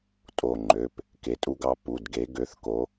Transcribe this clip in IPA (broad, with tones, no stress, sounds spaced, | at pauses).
tʼ o˧˩ ŋ͡ǃ ø˩˧˩ p | k e˨˦ tʼ u˦ ɡ ɑ˦ p u˩˧˩ d ɡ e˨˦ ɡ ø˨˦ θ k o˨˦